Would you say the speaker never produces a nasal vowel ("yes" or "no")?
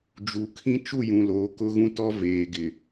no